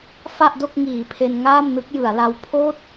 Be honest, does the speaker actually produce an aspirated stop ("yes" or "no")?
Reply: yes